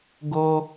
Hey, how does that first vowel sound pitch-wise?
high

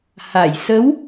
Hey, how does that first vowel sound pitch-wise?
low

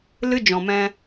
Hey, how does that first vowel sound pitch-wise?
high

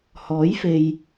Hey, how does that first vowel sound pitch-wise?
rising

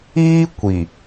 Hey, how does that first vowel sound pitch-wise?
high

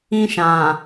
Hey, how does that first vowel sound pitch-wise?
high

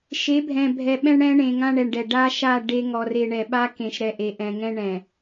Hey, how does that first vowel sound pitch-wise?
rising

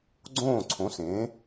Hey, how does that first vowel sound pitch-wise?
falling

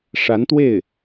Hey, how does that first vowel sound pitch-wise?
rising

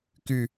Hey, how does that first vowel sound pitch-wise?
falling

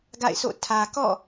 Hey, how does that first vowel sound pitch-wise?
falling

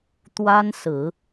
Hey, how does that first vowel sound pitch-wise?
high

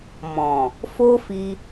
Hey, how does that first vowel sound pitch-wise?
low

